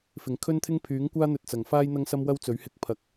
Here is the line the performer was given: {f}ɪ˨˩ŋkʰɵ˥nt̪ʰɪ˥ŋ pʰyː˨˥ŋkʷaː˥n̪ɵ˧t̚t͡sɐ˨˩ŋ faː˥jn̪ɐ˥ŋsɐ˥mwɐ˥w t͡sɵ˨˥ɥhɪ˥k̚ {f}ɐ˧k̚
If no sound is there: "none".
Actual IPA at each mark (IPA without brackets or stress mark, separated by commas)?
f, pʰ